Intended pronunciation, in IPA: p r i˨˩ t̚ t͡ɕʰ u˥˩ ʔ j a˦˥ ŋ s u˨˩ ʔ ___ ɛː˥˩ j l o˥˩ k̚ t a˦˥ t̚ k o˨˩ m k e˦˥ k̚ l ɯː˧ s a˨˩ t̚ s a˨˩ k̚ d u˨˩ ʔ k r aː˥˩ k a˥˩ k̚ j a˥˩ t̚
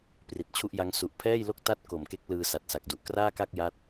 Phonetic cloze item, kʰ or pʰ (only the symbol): pʰ